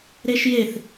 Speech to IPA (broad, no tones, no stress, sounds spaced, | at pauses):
ɾ e ʃ j e θ